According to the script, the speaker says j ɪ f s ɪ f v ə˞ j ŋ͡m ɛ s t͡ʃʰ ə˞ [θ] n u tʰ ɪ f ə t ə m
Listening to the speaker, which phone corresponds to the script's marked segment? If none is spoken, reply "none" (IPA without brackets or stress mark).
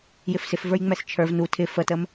v